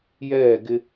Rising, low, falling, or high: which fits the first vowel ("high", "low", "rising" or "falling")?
falling